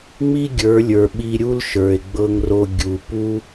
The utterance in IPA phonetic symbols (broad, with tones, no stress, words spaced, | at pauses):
ŋ͡mi˦ɡʲə˞˨˦lʲə˞˨ ɓi˧ɾʲu˦lʃə˞˨e̯ ɡ͡bɤ˦ŋro˦ ɡʲu˨pu˦